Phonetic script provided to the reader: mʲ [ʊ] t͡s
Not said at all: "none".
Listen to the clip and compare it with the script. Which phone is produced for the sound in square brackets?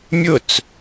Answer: ʊ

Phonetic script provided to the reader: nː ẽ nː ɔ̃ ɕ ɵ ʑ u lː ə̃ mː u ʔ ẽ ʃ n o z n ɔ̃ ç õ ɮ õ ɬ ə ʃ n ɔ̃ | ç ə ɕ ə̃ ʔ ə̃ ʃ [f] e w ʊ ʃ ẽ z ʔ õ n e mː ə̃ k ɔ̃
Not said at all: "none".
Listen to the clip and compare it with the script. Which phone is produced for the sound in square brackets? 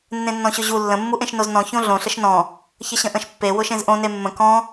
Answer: pː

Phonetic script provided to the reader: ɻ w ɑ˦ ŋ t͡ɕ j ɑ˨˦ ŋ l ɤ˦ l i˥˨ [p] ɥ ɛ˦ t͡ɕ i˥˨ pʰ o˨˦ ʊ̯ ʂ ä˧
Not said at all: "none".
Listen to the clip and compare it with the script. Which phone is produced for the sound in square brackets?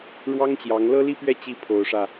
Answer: p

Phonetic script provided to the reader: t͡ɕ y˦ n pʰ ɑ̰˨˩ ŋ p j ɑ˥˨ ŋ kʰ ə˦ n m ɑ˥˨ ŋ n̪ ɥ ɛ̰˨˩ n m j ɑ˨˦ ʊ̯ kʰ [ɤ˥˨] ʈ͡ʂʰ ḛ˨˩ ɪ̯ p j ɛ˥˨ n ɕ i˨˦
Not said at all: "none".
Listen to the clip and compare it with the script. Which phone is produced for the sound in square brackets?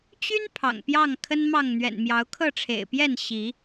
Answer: ɤ˥˨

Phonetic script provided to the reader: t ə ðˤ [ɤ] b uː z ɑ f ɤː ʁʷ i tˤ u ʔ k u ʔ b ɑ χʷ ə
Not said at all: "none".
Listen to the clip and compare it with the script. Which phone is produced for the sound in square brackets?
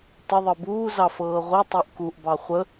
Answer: ɤ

